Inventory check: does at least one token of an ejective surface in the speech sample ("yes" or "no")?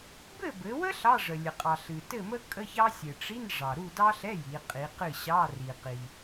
yes